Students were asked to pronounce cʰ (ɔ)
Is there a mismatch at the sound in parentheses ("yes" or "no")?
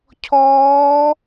yes